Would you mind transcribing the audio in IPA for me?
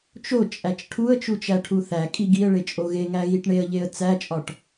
t͡ʃ o t͡ʃʼ æ t͡ʃ ʈʰ u ə̯ t͡ʃ u t͡ʃ æ ʈʰ u θ æ kʼ i ɡ i ə̯ ɭ e t͡ʃʼ o ɣ e ŋ æ ɣ i ʈ ɳ e ə̯ ʎ e ə̯ t͡s æ t͡ʃʼ ɒ ʈ

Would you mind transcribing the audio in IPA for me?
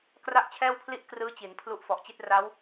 k r a˥˩ ʔ t͡ɕʰ ɛː˥˩ w pʰ l i˥˩ ʔ k r ɯː˦˥ t͡ɕ i˩˦ n pʰ l u˦˥ ʔ f ɔ˨˩ ʔ t͡ɕ i˥˩ t̚ r a˦˥ w

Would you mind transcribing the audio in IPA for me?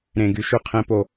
ɾ ẽ˨ ɡ y˨ ʃ ʉ˧ qʰ ẽ˧ p o˦˨

